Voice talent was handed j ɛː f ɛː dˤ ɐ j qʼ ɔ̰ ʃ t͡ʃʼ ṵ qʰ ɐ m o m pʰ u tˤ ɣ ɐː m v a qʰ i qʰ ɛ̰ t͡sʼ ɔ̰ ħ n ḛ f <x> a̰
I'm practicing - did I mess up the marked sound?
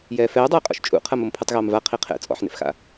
no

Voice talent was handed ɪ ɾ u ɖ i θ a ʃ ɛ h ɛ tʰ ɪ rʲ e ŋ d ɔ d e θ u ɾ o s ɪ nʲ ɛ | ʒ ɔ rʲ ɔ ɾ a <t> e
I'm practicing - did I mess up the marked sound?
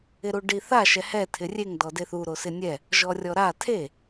yes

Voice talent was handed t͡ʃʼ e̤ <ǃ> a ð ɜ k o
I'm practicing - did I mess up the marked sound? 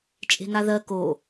yes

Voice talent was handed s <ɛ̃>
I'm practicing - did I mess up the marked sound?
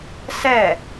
yes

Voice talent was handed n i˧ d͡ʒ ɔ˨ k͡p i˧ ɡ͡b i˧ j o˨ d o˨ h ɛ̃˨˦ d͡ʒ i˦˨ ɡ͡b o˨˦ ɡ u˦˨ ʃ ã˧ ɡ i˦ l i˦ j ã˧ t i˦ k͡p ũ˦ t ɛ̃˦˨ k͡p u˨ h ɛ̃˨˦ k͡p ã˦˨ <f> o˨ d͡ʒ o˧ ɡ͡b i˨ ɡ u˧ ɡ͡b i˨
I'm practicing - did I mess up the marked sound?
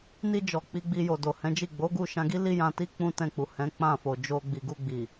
no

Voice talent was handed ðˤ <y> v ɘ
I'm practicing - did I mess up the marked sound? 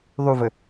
no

